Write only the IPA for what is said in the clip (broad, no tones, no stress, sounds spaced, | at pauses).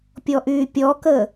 pʲ ɔ ʔ yː pʲ ɔ k ə